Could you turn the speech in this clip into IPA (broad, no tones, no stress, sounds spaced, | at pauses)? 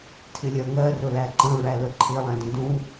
tʰ ɪ lʲ ɜ ŋ ɜ r ʊ l æ ǃ ə̃ ɹ æ l ə ǃʰ ɪ lˠ æ̃ d ə̃ d ũ